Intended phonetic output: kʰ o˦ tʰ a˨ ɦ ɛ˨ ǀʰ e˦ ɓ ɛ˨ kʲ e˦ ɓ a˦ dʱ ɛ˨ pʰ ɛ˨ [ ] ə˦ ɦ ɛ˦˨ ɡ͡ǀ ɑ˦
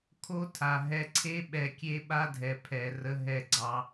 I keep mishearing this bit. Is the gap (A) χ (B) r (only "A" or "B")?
B